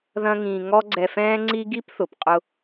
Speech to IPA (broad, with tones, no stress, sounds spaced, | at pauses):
ð ɐ̃˥ ŋ ĩː˧ ŋ ɔ˥ ɡ͡ǀ ɛ˧ f ɛ̃ː˥ ŋ͡ǀ i˥ ɡ i˥ p θ ʊ˩ p qʼ ʊ˥